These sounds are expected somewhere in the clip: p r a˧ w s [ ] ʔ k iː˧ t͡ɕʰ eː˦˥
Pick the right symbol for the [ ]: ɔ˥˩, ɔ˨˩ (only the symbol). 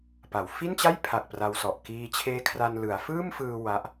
ɔ˨˩